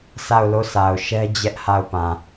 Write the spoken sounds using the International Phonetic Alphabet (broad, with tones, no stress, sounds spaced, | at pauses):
sʰ a˦˨ ʊ̯ l o˦˨ s a˨ ʊ̯ ʃ ɛ˦ d͡ʑ ɛ˦ ʔ h a˦˨ ʊ̯ p ã˨